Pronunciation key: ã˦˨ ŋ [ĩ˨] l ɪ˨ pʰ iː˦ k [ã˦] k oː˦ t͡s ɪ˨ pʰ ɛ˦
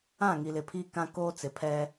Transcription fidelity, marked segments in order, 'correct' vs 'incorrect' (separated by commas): incorrect, correct